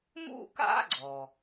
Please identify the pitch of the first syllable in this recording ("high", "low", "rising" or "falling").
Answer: high